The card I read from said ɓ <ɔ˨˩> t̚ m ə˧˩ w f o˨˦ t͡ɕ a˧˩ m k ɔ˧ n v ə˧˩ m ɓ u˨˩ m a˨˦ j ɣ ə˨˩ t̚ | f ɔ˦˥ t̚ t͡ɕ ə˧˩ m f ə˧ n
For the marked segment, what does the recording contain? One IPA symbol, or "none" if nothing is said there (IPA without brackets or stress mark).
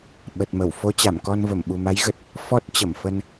ə˨˩